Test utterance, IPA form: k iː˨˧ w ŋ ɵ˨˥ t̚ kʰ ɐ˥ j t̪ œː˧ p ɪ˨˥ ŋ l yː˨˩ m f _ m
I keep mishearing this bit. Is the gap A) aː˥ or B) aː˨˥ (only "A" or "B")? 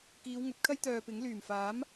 B